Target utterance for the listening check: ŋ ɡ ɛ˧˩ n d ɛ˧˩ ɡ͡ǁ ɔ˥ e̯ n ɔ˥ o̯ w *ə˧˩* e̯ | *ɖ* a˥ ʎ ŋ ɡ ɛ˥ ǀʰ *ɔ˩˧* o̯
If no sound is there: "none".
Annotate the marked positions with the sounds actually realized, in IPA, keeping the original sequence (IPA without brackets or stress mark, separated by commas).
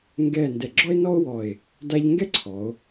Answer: ɔ˧˩, d, ɔ˩˧